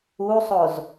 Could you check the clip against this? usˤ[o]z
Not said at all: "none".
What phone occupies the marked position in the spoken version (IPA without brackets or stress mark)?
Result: o